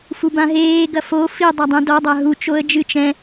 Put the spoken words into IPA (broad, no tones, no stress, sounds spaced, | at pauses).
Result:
f u b ã ɦ eː ɡ ɐ f o f i dˤ a dˤ ẽ d ɔ dˤ a ɦ u t͡ʃ o ə̯ d͡ʒ ɨ t͡ʃ ɛ̃